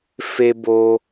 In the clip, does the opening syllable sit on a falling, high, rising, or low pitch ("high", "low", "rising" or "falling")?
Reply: high